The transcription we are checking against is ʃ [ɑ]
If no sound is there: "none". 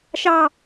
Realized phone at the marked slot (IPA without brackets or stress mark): ɑ